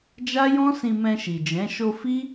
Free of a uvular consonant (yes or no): yes